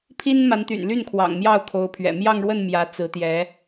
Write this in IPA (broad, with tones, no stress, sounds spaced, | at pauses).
pʰ i˥ n m a˧˥ n t̪ y̰˨˩ n l y˥˩ n kʰ w ɑ̰˨˩ ŋ m j ɑ˥˩ ʊ̯ kʰ o˧˥ ʊ̯ pʰ ɥ ɛ̰˨˩ m j ɑ˥˧ ŋ ɻ w ə˥˩ n m j ä˧˥ t͡s ɹ̩˧˥ t̪ j ɛ˧˥